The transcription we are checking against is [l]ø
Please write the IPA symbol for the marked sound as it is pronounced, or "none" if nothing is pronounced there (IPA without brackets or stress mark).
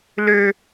l